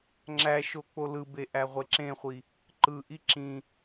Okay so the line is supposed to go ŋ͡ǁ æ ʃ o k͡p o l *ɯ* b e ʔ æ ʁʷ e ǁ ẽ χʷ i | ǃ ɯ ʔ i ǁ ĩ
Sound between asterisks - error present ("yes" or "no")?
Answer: no